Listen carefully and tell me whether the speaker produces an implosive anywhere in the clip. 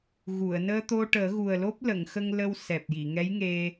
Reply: no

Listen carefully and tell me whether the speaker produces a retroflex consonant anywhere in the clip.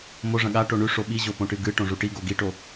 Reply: yes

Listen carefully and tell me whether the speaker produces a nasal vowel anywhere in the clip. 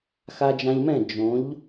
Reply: yes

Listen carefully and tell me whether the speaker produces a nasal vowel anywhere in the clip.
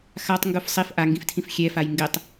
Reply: yes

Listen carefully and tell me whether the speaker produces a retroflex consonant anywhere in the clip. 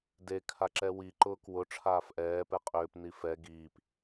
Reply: yes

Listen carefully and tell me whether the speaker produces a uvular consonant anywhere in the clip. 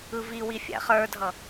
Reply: yes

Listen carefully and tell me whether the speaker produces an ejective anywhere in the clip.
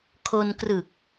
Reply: no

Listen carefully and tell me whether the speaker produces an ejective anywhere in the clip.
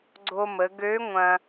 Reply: no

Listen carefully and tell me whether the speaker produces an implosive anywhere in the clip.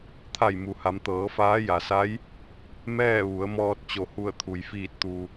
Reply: no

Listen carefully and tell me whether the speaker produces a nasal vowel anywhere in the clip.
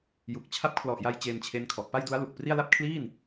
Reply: no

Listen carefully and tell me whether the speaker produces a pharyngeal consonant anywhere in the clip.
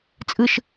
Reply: no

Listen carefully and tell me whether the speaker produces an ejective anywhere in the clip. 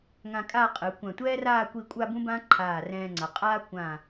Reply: yes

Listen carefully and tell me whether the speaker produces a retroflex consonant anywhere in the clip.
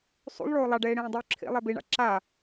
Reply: yes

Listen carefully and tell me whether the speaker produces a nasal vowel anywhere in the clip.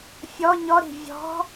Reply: no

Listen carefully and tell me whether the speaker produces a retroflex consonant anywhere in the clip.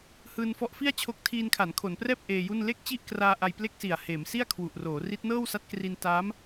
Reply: no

